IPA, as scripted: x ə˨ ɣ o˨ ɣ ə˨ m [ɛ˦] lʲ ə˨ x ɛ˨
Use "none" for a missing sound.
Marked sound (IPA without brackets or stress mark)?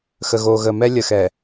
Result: ɛ˦